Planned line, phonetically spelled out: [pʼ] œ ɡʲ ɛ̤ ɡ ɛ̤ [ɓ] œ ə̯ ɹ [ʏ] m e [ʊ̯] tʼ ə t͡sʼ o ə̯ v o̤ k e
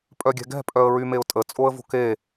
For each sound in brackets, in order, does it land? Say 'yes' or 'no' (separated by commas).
yes, no, no, yes